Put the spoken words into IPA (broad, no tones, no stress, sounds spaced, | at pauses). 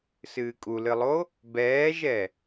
s ɨː kʼ u l ɨ lˠ o | b ɛː ʒ ɛ